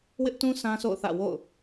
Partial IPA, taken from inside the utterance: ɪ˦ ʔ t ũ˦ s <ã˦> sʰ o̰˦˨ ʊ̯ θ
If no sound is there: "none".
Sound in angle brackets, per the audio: ã˦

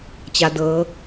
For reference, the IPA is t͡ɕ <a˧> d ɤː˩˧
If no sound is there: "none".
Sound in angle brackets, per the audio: a˩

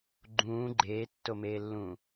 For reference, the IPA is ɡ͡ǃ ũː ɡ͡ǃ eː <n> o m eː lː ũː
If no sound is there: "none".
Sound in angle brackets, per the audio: tː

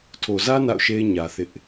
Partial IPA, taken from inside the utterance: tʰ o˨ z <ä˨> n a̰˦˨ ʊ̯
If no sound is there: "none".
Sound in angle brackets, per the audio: ä˦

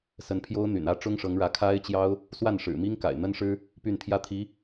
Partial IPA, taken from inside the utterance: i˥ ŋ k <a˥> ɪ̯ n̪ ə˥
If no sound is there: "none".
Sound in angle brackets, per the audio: a̰˨˩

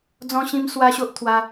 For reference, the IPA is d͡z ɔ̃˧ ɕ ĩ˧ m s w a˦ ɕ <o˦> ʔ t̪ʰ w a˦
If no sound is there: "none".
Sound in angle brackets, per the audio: o˦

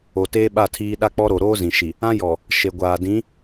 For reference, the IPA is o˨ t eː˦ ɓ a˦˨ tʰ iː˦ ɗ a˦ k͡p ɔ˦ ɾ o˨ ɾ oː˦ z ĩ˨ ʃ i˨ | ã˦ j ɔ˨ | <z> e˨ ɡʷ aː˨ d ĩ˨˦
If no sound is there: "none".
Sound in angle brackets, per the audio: ʃ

